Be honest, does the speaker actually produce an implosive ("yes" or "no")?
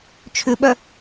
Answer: yes